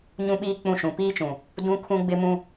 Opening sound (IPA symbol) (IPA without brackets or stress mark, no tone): ɲ